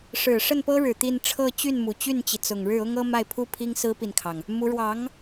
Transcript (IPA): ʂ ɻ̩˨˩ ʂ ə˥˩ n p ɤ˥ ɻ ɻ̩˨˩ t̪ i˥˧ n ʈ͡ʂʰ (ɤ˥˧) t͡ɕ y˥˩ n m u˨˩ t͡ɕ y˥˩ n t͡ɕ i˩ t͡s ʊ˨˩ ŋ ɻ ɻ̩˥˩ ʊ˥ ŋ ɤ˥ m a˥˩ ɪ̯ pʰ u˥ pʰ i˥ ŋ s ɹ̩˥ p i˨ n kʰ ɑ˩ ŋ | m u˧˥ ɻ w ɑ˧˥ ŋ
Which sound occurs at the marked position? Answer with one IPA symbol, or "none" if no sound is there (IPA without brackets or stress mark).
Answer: ɤ˥˧